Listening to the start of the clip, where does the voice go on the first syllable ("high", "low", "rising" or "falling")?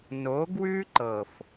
rising